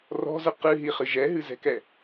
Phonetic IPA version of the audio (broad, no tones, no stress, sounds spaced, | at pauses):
r ɔ̤ z ə q ɨ ɦ i χ ɨ ʒ ɛ ɦ ɨ z ɛ̤ k ɛ